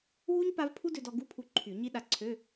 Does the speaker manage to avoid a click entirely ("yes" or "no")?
no